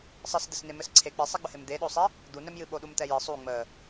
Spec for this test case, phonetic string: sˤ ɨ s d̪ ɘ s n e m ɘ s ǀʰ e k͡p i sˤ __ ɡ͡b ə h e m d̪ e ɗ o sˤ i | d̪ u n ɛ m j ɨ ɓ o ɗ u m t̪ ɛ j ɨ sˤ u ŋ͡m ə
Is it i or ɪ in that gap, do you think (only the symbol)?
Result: i